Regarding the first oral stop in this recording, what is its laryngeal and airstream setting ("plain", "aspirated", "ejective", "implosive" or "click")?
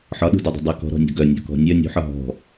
implosive